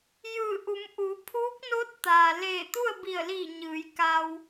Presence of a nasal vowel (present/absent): absent